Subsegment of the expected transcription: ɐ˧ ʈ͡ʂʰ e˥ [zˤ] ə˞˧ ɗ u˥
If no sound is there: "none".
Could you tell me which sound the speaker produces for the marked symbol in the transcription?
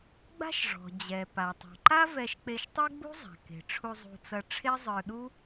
zˤ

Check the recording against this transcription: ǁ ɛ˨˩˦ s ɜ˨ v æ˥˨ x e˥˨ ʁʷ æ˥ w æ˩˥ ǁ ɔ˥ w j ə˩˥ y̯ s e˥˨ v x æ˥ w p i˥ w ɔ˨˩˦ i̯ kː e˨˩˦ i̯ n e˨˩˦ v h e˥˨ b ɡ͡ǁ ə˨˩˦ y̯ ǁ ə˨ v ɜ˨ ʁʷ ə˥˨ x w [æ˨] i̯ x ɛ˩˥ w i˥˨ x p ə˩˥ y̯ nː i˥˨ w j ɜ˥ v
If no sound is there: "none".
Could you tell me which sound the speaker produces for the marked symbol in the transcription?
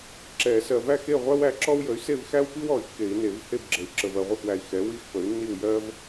æ˨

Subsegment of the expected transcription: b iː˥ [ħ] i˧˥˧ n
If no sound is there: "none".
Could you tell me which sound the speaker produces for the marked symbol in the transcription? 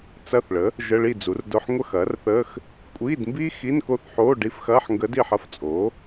x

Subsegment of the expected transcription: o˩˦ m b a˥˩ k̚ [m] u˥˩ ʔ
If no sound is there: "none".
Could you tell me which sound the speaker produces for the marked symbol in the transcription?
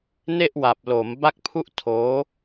pʰ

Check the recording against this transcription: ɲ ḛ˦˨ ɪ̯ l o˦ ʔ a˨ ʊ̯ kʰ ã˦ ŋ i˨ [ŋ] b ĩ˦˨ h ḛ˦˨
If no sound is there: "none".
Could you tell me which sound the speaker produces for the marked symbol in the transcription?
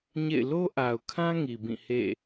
none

